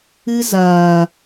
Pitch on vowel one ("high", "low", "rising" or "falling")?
high